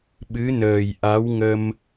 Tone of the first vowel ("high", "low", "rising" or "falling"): rising